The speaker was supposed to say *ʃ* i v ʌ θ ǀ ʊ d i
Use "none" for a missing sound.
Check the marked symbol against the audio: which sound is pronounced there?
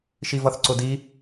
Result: ʃ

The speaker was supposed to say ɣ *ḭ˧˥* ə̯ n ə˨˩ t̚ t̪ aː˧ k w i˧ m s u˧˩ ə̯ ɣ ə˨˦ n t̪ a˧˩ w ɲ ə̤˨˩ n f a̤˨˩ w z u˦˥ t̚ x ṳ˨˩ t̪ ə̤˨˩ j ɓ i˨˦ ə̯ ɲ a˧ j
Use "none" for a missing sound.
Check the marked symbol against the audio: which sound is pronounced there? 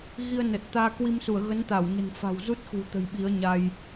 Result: i˧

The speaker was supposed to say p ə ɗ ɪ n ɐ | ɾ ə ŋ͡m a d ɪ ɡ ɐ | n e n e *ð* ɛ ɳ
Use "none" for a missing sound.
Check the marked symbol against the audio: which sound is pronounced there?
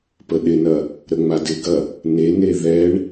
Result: ð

